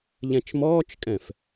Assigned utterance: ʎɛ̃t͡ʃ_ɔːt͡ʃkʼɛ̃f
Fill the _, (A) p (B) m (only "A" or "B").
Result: B